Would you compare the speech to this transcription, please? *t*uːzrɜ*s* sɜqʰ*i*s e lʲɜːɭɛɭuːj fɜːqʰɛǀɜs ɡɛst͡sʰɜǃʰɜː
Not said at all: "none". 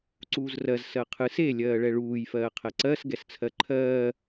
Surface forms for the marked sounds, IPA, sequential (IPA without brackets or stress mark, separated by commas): ǀ, z, ɨ